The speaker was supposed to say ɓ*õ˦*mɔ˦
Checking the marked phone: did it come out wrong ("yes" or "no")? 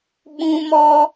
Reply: yes